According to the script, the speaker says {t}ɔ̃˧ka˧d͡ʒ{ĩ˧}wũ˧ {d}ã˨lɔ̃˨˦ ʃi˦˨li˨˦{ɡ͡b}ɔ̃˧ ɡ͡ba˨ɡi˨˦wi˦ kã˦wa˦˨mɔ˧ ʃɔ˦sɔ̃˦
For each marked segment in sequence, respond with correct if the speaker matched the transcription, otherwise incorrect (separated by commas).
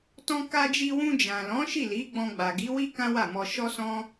correct, incorrect, incorrect, correct